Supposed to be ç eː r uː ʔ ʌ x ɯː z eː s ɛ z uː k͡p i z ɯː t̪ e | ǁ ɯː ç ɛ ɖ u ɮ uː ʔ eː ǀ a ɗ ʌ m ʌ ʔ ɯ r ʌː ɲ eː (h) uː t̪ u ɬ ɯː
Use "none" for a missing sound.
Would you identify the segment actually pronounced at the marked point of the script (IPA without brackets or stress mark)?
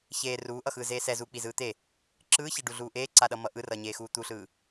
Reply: x